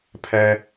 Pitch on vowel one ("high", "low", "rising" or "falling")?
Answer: low